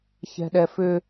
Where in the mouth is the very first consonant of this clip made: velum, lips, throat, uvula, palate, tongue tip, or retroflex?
palate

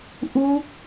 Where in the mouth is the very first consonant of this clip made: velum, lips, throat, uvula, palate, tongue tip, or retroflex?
throat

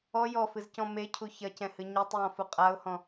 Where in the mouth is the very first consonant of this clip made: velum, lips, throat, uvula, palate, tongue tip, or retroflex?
palate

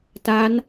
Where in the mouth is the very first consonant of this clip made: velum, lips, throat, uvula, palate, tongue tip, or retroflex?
tongue tip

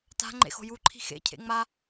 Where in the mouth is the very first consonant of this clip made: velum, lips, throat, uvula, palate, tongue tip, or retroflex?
tongue tip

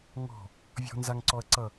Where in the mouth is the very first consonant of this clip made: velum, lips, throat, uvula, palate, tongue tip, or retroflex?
velum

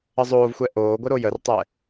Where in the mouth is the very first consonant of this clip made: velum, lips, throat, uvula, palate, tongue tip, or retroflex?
tongue tip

